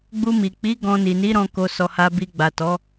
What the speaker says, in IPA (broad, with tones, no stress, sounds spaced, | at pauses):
ɡ͡b u˧ m i˨ k͡p i˨˦ ɡ ɔ̃˧ n i˨ n i˨˦ ɾ ɔ̃˧ k o˧ s ɔ˧ h a˧ b i˧ ɡ͡b a˨ t ɔ˨˦